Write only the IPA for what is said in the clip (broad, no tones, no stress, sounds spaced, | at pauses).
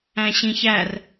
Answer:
æ̃ ɕ ĩ ç æ r